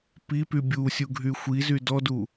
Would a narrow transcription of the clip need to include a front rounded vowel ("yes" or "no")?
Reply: yes